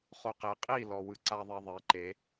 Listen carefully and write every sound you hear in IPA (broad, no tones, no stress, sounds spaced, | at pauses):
χ o q e qʼ i l ɔ w ɯ ǀ a ðˤ e ðˤ e ǃ e